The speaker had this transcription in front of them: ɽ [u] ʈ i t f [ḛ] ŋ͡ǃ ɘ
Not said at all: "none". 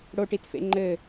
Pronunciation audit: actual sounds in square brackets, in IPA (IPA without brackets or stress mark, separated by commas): o, ḛ